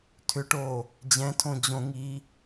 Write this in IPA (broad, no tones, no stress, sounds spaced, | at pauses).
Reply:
tʰ ʏ ʈ oː | d͡ʑ ɛ̃ tʰ õ d͡ʑ õ ŋ iː